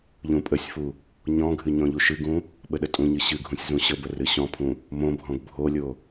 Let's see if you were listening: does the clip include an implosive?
yes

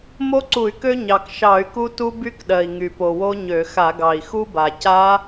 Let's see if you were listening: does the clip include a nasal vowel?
no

